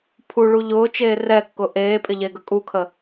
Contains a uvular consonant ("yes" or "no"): no